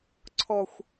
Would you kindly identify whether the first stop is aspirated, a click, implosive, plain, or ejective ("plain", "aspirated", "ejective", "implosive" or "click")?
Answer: click